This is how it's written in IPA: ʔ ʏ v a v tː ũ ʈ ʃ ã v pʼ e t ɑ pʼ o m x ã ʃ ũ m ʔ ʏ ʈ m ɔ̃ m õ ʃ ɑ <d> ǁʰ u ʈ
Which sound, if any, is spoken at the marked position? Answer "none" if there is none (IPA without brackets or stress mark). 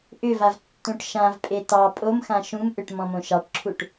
ʈ